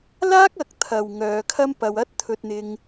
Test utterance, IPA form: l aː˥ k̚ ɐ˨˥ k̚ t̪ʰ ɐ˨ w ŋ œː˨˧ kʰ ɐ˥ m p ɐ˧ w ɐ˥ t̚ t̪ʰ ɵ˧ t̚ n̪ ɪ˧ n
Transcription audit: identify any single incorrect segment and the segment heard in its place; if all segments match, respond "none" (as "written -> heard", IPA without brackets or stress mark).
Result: n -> ŋ